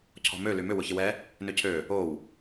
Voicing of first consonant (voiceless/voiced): voiceless